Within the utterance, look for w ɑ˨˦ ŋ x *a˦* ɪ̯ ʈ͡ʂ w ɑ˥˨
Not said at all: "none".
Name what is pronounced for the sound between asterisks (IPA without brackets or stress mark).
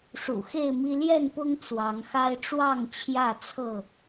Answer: a˦